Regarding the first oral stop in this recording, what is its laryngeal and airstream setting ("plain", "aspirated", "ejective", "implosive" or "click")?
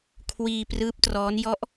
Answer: aspirated